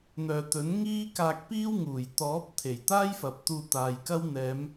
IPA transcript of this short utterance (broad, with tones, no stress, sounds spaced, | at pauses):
n̪ œː˨ t̪ ɵ˨˥ n ŋ iː˥ k aː˧ k̚ p iː˥ w ŋ uː˨˩ j t̪ ɔː˨˥ p̚ t̪ʰ e˨˩ j t̪ aː˥ j f ɐ˨ p̚ t̪ uː˧ t̪ aː˨ j k ɐ˥ w n̪ ɛː˨˧ m